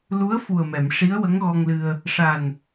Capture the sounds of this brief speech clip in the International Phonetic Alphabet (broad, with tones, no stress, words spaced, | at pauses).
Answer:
lu˧˥ə̯fu˨˩ə̯mɛ˨˩˨m ʂi˧˥ə̯wə˧˥ŋɣɔ˧ŋlɨ˧ə̯ | ʂa˨˩n